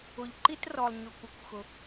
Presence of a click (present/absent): present